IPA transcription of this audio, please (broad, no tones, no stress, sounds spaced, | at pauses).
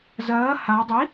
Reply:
z ɐː h a dˤ i